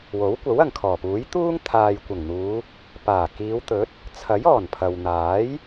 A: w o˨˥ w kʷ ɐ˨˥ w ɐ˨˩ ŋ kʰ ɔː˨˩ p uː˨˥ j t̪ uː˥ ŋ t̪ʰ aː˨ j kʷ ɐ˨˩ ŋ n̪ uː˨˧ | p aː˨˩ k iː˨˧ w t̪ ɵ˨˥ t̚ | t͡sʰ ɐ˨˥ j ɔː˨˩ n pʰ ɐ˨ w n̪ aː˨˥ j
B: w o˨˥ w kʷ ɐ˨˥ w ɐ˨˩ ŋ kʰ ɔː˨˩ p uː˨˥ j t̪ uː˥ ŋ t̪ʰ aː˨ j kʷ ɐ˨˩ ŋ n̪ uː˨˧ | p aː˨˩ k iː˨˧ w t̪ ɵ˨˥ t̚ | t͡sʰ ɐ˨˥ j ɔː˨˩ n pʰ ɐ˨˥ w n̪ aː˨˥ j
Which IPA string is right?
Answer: A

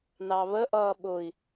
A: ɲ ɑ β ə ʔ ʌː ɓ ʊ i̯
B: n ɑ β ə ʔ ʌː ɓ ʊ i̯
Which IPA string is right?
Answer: B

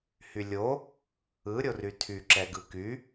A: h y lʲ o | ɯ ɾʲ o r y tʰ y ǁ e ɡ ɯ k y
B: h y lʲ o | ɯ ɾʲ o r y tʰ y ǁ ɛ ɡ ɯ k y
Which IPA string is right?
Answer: B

